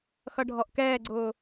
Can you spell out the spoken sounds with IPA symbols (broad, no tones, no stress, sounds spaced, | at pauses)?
x ʌ ɖʱ ɔ ʔ k ɛː ɡ͡ǀ ʊː